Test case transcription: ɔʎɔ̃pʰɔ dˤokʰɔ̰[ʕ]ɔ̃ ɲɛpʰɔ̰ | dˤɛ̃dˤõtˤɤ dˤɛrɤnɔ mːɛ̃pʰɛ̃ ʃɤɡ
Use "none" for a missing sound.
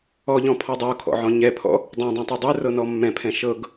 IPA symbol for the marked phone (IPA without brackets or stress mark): ʕ